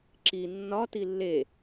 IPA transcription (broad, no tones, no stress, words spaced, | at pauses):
ǁi nːɒ tilːe